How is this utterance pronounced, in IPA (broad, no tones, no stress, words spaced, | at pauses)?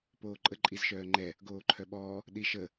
poːǃʼə ǃʼizʃœːŋ͡ǃɛ | ɡoːǃʰœɓɔː | ɗiʃə